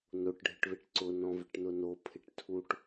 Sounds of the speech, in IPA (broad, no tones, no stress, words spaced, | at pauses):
noʈ ɖʱɪʈβɪʈǀʊ nɔ̃vɪʈnʊno pʰɪʈtʰuʈ